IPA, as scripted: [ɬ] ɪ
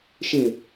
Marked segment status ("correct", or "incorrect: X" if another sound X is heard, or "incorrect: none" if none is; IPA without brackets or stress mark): incorrect: ʃ